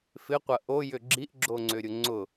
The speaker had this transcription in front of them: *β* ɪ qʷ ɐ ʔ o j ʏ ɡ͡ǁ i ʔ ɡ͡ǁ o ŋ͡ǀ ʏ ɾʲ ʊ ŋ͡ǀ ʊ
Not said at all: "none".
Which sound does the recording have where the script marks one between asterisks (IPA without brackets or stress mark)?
f